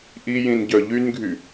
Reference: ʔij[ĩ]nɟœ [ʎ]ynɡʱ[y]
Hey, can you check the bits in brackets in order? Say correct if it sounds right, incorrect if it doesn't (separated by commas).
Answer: correct, correct, correct